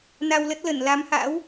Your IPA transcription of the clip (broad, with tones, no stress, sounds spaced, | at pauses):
n a˧ w l ə˦˥ t̚ l ə˧˩ n l a˨˦ m h a̰˧˥ w